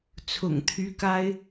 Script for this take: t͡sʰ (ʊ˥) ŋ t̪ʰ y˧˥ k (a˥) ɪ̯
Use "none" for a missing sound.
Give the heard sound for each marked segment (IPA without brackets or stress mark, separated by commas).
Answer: ʊ̰˨˩, a˥